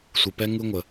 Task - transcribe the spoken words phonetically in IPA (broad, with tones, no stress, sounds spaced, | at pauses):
sʷ ɯ˨ p ɛ˦ ŋ ɯ˦ ŋʷ ə˦